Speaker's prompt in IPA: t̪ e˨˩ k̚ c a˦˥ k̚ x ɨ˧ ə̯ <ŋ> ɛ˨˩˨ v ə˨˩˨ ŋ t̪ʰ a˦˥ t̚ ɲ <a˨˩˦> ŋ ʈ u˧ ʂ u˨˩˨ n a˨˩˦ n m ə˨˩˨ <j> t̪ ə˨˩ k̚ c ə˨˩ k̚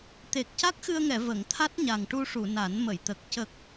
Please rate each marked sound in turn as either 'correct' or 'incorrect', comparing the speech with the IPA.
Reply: correct, incorrect: a˨˩, correct

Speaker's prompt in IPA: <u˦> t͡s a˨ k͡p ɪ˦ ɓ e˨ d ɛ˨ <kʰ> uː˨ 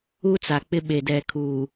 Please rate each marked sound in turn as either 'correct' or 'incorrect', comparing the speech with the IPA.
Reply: correct, correct

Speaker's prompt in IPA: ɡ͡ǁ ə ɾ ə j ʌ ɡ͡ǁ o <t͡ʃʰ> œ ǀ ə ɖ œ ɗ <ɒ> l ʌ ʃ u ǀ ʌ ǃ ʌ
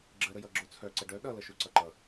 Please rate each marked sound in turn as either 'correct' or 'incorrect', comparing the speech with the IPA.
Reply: incorrect: t͡sʰ, incorrect: ʌ

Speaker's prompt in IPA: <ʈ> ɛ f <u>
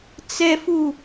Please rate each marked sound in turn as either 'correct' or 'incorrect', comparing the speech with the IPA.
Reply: incorrect: t͡s, correct

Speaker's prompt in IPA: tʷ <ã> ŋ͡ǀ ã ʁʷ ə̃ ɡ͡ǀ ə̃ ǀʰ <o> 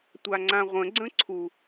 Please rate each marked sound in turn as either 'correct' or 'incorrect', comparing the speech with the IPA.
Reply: incorrect: a, incorrect: u

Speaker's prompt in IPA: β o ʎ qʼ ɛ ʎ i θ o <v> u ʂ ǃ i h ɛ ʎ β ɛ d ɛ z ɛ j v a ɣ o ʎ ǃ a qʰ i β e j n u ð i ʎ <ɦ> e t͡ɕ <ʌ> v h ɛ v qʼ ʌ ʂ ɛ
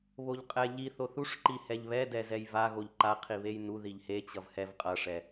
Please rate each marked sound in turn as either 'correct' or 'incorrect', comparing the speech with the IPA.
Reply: incorrect: θ, incorrect: h, correct

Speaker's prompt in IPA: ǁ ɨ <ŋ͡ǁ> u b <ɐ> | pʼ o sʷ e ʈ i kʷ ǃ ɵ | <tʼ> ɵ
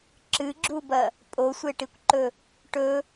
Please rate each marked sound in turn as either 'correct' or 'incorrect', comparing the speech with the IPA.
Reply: incorrect: ɡ͡ǁ, correct, incorrect: ʈ

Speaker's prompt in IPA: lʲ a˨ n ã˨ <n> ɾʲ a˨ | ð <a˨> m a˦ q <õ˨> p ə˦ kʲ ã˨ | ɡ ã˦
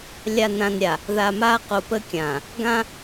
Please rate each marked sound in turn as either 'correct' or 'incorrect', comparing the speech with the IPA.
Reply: correct, correct, incorrect: o˨

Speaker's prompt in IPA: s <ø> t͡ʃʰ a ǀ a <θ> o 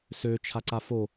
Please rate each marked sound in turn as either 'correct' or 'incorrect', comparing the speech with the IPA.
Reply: correct, incorrect: f

